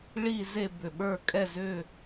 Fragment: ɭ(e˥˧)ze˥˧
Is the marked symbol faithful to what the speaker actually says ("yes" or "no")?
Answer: no